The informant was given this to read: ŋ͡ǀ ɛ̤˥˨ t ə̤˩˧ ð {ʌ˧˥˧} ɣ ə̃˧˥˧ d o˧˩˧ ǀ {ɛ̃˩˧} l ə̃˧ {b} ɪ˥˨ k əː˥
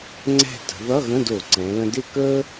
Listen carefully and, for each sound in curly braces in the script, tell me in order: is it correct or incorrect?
correct, correct, incorrect

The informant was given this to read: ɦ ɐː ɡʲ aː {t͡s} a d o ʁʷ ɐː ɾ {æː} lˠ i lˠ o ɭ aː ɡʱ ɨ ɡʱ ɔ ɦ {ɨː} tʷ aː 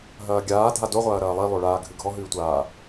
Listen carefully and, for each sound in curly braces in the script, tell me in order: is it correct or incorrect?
incorrect, incorrect, correct

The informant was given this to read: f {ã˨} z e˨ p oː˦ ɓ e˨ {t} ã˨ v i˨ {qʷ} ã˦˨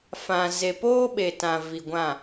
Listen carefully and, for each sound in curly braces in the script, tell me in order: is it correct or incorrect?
correct, correct, incorrect

